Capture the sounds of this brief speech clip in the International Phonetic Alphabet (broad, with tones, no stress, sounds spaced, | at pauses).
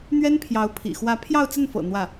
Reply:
n̪ ɥ ɛ˥ n pʰ j ɑ˧˥ ʊ̯ pʰ ḭ˨˩ x w ä˧˥ pʰ j ɑ˥˧ ʊ̯ t͡s ə˥˩ n f ɤ̰˨˩ n̪ w ä˥˩